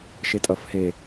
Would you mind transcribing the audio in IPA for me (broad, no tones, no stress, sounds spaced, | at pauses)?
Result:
ʃ e tʼ ʌ f h e